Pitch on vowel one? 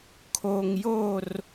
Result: low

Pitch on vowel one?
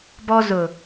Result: high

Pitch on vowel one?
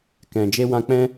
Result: low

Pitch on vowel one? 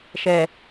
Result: low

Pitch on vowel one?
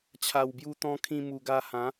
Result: low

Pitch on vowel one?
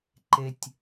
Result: low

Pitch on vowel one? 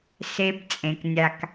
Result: high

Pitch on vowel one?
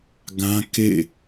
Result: high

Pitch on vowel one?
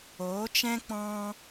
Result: rising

